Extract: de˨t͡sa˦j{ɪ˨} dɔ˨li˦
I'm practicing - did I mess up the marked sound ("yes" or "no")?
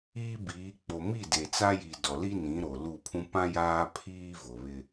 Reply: yes